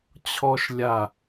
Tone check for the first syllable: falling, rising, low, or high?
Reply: high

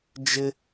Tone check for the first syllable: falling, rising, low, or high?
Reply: high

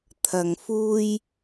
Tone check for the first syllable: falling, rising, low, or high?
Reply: low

